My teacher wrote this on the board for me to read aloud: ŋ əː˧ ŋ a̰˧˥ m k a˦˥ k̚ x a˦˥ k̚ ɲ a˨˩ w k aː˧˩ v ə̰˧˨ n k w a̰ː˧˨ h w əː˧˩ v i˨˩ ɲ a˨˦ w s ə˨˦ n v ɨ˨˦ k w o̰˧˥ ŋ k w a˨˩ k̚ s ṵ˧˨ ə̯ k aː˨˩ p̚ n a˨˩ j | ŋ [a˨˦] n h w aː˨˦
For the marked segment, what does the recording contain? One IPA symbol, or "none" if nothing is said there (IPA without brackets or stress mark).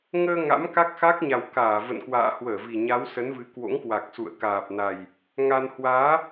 a˧